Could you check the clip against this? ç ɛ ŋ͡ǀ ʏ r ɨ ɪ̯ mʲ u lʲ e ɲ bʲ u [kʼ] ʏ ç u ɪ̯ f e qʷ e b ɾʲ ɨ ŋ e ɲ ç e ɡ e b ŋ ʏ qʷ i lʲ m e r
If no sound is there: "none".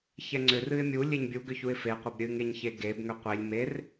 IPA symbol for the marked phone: ɡ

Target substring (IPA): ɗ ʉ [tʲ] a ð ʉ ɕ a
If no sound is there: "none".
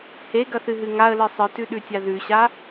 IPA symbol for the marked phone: tʲ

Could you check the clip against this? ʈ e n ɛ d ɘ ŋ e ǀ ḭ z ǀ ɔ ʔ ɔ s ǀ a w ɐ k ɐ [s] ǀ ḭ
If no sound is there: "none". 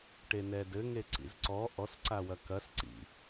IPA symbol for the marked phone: s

